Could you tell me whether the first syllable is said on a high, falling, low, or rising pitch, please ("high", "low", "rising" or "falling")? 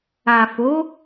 low